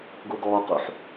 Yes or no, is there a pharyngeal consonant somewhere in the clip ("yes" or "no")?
yes